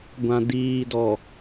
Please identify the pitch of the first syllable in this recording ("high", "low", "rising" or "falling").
low